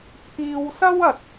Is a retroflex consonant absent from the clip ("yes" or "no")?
yes